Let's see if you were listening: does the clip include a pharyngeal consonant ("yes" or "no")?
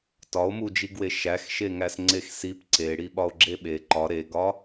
no